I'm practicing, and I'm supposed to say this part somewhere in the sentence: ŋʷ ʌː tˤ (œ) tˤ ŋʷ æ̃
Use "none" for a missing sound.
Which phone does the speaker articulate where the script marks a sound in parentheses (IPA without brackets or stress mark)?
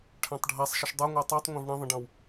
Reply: æ